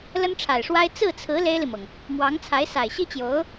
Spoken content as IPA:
l ə˥ n ʈ͡ʂʰ a˨˩ ɪ̯ ʂ w a˥ ɪ̯ t͡s ɹ̩˥˩ t͡sʰ ɹ̩˧˥ l e˥ ɪ̯ l i˨ m ɤ˩ ŋ | m w ɑ˧˥ ŋ t͡sʰ a˧˥ ɪ̯ s a˨˩ ɪ̯ ɕ i˥ t͡ɕ j o˧˥ ʊ̯

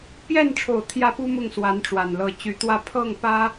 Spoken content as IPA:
p j ɛ˥˩ n ʈ͡ʂʰ o˨˩ ʊ̯ t̪ʰ j ä˥ p u˥ m ʊ˥˩ ŋ s w a˧˥ n ʈ͡ʂ w a˨˩ n l ɤ˧˥ t͡ɕ y˧˥ t̪ w ä˥˧ pʰ ɤ˥˩ ŋ p ä˥

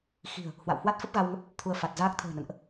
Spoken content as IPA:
x i̤˨˩ ə̯ | h w a̰˧˨ w h w a˦˥ t̚ f ə˦˥ p̚ ɣ a˧ w ŋ ə˦˥ p̚ | t̪ʰ u˧ ə̯ f a˨˩ t̚ z aː˦˥ k̚ t̪ʰ ə̤ː˨˩ n ə̰˧˨ n ʔ

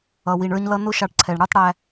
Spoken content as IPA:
ʌ˩ w i˩ ɳ ə˞˧ ɲ l ʌ˧ n ʊ˥ ʃ ɑ˧ ʈ ǀʰ ɛ˩ ɳ ɽ ə˞˥ tˤ ɽ æ˧

